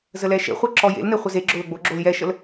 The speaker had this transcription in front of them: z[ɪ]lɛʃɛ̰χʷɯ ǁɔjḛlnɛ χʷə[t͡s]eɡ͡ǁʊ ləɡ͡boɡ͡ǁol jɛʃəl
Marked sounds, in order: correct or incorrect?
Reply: incorrect: ə, incorrect: z

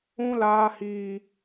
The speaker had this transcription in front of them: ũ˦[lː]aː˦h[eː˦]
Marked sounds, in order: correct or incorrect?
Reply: incorrect: l, incorrect: iː˦

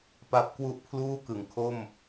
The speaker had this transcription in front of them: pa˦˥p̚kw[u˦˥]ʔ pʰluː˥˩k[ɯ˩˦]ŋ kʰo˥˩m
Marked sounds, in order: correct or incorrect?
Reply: incorrect: u˥˩, correct

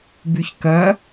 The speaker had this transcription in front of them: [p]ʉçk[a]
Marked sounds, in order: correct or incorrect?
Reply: incorrect: b, incorrect: ɐ

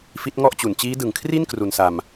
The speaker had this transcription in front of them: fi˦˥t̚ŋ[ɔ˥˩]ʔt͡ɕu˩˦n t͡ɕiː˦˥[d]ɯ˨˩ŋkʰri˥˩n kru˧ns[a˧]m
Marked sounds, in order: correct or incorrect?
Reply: correct, correct, correct

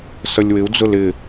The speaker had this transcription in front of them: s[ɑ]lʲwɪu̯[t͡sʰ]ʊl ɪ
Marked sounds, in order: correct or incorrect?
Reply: incorrect: ʌ, incorrect: d͡z

